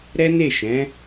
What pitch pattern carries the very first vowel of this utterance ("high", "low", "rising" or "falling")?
high